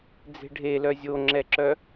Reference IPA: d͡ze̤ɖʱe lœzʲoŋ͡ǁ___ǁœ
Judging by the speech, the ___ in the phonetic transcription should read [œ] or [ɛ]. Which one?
ɛ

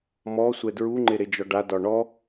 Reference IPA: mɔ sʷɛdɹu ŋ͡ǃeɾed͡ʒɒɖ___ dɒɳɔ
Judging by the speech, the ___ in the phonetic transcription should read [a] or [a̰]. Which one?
a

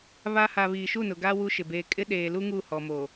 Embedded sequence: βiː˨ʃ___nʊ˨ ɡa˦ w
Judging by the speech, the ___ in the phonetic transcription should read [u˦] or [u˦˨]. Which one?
u˦˨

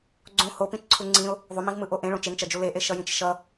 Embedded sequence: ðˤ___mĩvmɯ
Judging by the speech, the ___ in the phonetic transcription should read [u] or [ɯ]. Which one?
u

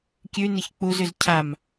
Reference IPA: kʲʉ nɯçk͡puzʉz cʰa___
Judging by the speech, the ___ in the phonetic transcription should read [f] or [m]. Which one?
m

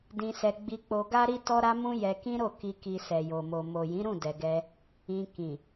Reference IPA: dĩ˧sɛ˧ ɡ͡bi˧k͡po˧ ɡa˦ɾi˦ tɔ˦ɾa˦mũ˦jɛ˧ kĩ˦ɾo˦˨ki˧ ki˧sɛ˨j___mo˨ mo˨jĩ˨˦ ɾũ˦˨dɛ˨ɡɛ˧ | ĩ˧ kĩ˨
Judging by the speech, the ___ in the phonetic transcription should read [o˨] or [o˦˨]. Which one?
o˨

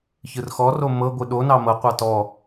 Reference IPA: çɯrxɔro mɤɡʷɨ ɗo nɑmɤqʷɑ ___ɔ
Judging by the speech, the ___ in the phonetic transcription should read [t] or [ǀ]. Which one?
t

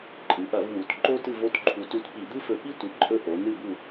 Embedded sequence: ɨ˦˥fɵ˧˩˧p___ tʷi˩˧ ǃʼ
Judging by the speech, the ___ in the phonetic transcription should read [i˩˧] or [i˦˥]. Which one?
i˦˥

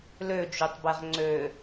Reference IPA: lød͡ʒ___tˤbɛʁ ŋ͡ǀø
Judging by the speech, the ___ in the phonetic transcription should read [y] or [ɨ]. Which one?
y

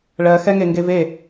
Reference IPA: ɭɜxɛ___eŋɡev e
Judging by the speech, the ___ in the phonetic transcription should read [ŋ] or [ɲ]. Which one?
ŋ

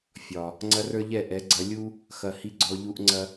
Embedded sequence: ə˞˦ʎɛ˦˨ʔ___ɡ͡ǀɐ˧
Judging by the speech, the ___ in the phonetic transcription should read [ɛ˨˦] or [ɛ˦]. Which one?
ɛ˨˦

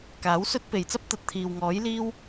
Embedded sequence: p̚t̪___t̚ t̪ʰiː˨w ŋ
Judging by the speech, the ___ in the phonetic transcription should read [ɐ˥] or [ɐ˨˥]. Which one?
ɐ˨˥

